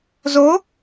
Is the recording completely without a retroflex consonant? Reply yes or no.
yes